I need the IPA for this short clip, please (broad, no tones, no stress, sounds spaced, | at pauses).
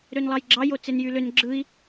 ɾ ø n lˠ ɑ j ɡ͡ǁ ɑ j o t͡s e n j y l ø n ɡ͡ǁ ɯ i̯